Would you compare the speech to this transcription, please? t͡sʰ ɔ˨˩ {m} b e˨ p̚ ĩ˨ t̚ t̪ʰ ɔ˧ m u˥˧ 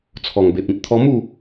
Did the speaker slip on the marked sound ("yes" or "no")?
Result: yes